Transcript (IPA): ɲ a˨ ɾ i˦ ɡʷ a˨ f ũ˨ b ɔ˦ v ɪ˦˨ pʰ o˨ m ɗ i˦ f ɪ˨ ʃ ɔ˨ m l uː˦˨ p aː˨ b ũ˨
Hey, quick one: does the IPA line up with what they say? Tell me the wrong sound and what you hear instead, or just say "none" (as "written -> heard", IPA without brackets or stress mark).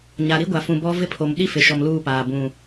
none